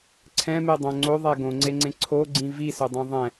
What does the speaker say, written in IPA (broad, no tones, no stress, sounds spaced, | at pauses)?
ǀʰ ɛ̃ m e dˤ õ ŋ͡ǀ o ðˤ ɛ ɡ õ ŋ͡ǀ e ŋ͡ǀ ẽ ǀʰ o ɡ͡ǀ ĩ v i s ɵ dˤ õ ðˤ ɛ̃